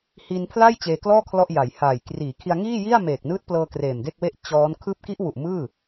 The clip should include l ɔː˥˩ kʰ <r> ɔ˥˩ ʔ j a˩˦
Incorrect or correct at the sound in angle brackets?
incorrect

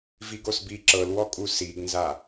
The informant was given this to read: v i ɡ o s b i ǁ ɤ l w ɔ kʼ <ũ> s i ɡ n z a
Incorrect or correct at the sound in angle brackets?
incorrect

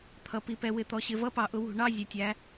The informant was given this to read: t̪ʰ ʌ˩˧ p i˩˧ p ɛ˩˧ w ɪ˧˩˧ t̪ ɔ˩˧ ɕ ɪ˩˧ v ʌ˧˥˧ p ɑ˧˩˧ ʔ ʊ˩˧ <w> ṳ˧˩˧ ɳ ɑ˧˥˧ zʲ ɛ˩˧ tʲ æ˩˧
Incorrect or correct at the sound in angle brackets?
correct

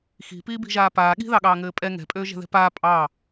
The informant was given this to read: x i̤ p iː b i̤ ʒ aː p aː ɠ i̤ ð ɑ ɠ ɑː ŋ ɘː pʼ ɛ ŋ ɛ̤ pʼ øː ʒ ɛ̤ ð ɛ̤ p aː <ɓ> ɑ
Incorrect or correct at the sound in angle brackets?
incorrect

